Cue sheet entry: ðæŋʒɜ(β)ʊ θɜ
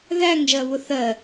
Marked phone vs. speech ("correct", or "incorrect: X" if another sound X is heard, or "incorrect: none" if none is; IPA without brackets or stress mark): correct